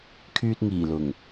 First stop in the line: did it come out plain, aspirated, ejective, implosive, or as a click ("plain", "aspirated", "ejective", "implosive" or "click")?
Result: aspirated